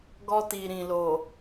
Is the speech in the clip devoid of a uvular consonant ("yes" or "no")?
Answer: yes